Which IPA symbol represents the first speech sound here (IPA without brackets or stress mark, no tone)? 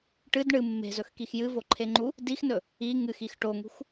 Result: ʈ